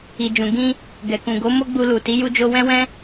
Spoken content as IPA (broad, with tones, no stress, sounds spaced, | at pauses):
i˨ d͡ʒ ũ˨ ɡ ĩ˧ | ɡ ɛ˨ k ũ˨ ɡ o˨˦ m o˦ ɡ͡b u˧ l u˨ t i˨˦ j u˦ d͡ʒ o˦ w ɛ̃˦ w ɛ̃˦